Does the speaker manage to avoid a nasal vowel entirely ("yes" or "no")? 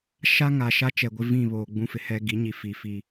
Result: no